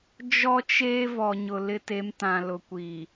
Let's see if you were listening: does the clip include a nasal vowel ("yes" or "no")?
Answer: yes